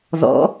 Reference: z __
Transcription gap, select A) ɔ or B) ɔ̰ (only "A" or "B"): B